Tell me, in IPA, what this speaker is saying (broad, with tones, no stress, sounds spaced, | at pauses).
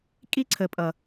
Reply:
kʼ i˦ ǀʰ ə˨ pʼ ʌ˨